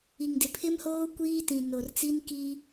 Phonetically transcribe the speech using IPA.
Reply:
i˨ŋdɪ˨pʰɪ˦mhoː˦ kʷiː˦tĩ˨ no˨rt͡si˦n ki˦

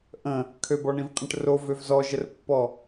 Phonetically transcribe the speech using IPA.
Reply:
ʔə̃ | kʰøbɔɳĩvqʼə̃ʈ ro vøvzɔʒərpːɔ

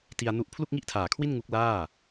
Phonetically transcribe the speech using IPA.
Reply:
ti˧a̯nu˦˥ʔ pʰlu˥˩k̚ŋi˥˩ʔtʰaː˨˩kʰwi˥˩n ŋu˦˥k̚laː˥˩

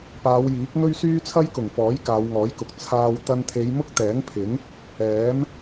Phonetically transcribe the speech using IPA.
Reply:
paː˨˧wjiː˨˥k̚ ŋɵ˥ɥsyː˥t͡sʰɐ˥j kʊ˨˩ŋfɔː˨˥j kaː˨˧wŋɔː˨˥jkʊ˨˥k̚ t͡sʰaː˧w t̪ɐ˥n t̪ʰe˨˧jmʊ˥k̚t̪ɛː˨˥ŋpʰɪ˨˥ŋ | ɛː˨˥m

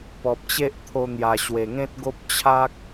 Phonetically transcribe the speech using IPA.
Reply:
pɔ˨p̚t͡ɕe˦ʔt̪ʰo˧ n̪ja˨˩ɕwe˨˩ŋẽ˦t̚ɡo˦p̚ t͡ɕʰa˦k̚

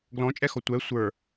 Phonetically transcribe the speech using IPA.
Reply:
ɡlɔ̃t͡ʃʼɛxɔ tʷɛ sʷə˞

